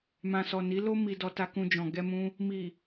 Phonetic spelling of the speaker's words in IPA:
m ã˨ s ɔ˨ n i˨˦ l o˦ m i˧ d ɔ˧ t a˧ k ũ˧ d͡ʒ ɔ̃˨ ɡ ɛ˧ m ũ˧ | m i˨

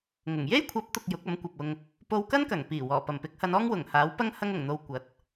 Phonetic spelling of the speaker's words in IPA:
ŋ ʊ˨˩ ŋ j e˥ j kʷʰ ɐ˨˥ p̚ t̪ ʊ˨ k̚ j ʊ˨˥ k̚ ɐ˨˥ m kʷ ɐ˨ p̚ ʊ˧ ŋ | p o˧ w k ɐ˥ n k ɐ˨˩ ŋ p iː˨˩ w ɔː˨˩ p ɐ˨˩ m p ɪ˨˥ k̚ h ɐ˨˧ n ɔː˥ ŋ w ʊ˨˩ ŋ h aː˨˥ w p ɐ˥ ŋ h ɐ˧ ŋ ʊ˨˩ ŋ n̪ o˨ w kʷ ɐ˨˥ t̚

